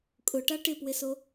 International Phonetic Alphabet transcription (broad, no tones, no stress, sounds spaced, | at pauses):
kʼ ʊ ʈ a ʈ ɪ p w ɪ s o